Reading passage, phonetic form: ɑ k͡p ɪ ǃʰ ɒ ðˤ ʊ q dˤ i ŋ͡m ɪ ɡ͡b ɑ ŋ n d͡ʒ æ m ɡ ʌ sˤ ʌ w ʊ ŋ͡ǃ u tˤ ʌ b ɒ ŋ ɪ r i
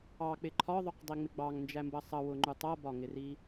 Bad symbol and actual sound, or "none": ɡ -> b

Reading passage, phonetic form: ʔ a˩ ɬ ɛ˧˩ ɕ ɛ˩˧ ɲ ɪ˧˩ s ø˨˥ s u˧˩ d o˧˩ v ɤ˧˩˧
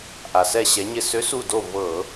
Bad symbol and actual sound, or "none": ɬ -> s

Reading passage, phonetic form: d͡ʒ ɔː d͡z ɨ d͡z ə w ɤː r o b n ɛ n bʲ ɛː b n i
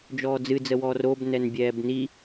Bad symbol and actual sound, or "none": ɤː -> ɔː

